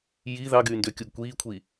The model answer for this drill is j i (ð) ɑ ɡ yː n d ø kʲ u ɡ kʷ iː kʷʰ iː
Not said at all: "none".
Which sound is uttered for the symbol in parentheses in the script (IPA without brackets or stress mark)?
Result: ð